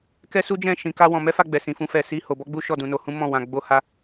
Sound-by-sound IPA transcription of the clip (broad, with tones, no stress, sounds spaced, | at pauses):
k ɛ˦ s u˦ d͡ʒ ɛ̃˦˨ ʃ ĩ˨˦ k a˦ w ɔ̃˧ m ɛ˦ f a˦˨ ɡ͡b ɛ˨ s ĩ˨ f ũ˨˦ f ɛ˧ s i˦ h o˧ b ɔ˦ ɡ͡b u˦ ʃ ɔ˦˨ d ũ˨˦ n o˧ h ũ˦ m ɔ̃˦˨ w ã˧ ɡ͡b o˦ h a˦